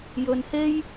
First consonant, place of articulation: palatal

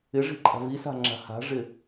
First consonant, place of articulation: retroflex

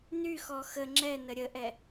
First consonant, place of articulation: alveolar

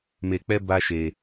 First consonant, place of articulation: labial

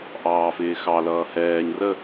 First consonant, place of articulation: glottal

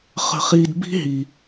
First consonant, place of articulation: uvular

